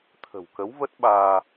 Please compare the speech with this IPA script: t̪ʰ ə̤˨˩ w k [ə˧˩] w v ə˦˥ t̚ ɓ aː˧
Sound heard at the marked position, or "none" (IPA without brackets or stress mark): ə˨˦